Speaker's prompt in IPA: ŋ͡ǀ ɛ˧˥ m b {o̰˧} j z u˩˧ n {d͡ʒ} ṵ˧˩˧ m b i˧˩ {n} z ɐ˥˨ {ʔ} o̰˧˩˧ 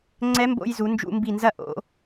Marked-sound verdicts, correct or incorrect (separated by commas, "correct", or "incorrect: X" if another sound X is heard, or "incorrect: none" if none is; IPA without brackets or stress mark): correct, correct, correct, correct